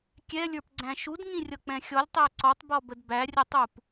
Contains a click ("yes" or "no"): yes